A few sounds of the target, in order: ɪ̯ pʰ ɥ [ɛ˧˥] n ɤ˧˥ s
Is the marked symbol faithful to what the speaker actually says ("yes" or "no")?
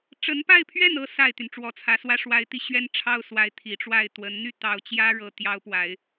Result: no